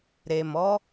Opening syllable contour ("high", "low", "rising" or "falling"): low